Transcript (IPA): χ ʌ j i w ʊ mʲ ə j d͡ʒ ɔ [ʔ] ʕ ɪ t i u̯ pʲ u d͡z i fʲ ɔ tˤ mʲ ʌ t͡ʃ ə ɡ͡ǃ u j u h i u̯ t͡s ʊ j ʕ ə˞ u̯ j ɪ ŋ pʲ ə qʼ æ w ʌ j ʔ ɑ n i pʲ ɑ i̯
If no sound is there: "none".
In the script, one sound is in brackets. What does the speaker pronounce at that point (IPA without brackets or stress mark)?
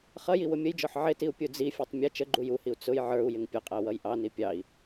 ħ